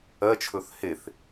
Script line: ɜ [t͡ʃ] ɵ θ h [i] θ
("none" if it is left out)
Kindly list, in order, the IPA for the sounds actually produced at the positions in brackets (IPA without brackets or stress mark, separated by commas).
t͡ʃʰ, e